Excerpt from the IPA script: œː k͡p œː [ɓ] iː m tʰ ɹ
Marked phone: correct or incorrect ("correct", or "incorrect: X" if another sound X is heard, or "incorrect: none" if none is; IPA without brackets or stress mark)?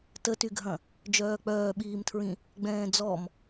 correct